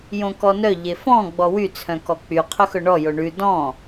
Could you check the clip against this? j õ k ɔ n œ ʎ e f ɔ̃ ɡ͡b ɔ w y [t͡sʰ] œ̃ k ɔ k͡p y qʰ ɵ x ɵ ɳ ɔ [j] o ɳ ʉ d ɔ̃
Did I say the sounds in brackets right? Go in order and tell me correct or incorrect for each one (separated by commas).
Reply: correct, correct